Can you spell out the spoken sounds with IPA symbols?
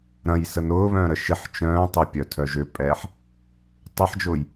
ɾ ɐ̃ j s ə n ʊː β œ̃ː ɾ ə ʃ ɪ ħ t͡ʃ œ̃ː tˤ ɪ pʲ œ tʰ œ ʒ ʏ pʼ ɛː ħ | tˤ ɐ ħ d͡ʒ ʊː j

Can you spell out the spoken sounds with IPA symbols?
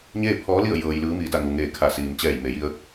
ɲ eː˥˨ pʰ ɔː˧˥ l i˥˨ ə̯ j ɤː˧ j l ɯː˧˥ m iː˧ d a˥˨ ŋ u˩ ŋ eː˧˩ kʰ a˧˩ s iː˩ m t͡ɕ ɛː˧˩ j m e˩˧ j i˧ ə̯

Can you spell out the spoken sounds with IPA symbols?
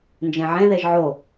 n d͡ʒ ẽ ʕ ẽ ð e ʒ ʕ o

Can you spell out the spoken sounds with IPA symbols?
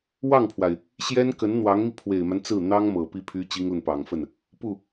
w ɑ˥˩ ŋ pʰ w a˩ ɪ̯ | ɕ j ɛ˥ n k ə˧˥ n n̪ w ɑ˧˥ ŋ m i˧ pʰ w e˨˩ ɪ̯ m a˦ n t͡s ɹ̩˥˩ n̪ ɑ˥ ŋ m ɤ˨˩ p i˥˩ pʰ y˥ t͡ɕ i˥ ŋ l ə˨ n p ɑ˨˩ ŋ f ə˥˩ n | p u˥˩

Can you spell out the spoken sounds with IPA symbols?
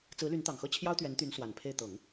t͡s ɹ̩˧˥ l y˧˥ n t̪ ɑ˨˩ ŋ x ɤ˥˩ t͡ɕʰ j ɑ˥ ʊ̯ t̪ ɥ ɛ˧˥ n t̪ y˧˥ n s w a˨˩ n pʰ e˥˩ ɪ̯ t̪ ɤ˨˩˦ ŋ

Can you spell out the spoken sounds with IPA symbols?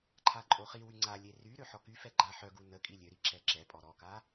ǃʰ a ǃʼ o χ i w y ŋ͡ǀ a lʲ e r y ɾ ø ħ ɔ k y f ɛ ɡ͡ǃ a ħ œ ɡ u n ə kʼ i lʲ ø ɾ i ǁ ɛ ǁ ɛ pʼ ɔ ɾ ɔ k a

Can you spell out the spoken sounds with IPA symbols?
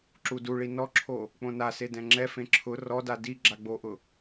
ǁ u d u ɭ i n ɔ ǁʰ o | k͡p õ n a s e d ɛ̃ ŋ͡ǁ ɛ f ẽ ǁʰ ʊ r ɔ d a d i ɡ͡ǁ a ɡ͡b o ʔ ʊ

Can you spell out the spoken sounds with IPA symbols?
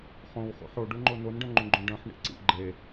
χ õ w χ ṵ ħ o ɖ u ŋ͡ǃ o n o n ɖ œ̃ ŋ͡ǃ ũ ɡ͡ǃ õ ɖ œ̃ ħ ɳ ḭ ǀ ḭ ɡ͡ǃ e

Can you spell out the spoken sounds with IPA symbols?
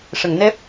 ʂ ə˨˩˨ ŋ n ɛ˦˥ p̚

